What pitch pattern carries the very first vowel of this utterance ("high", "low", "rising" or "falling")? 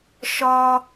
high